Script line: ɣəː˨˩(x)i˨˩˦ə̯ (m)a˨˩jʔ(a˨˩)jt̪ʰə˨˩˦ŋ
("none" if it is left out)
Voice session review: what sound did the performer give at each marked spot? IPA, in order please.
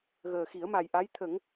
x, m, a˧˥

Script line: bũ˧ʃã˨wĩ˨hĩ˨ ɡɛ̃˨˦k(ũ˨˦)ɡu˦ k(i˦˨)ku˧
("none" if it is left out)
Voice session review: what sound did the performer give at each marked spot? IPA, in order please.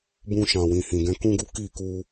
ũ˦, i˦˨

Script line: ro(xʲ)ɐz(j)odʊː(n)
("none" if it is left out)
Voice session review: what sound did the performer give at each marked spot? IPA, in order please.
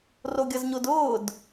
ɡʲ, ɲ, d

